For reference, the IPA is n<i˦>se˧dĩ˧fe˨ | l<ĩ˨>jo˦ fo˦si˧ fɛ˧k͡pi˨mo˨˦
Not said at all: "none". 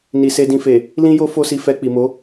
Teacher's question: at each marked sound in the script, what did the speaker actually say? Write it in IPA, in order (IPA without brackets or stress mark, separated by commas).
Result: i˨, ĩ˦